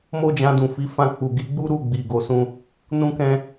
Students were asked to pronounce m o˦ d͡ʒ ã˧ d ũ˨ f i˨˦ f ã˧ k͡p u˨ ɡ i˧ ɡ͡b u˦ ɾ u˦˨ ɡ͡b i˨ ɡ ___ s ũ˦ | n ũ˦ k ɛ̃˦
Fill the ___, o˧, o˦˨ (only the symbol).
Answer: o˧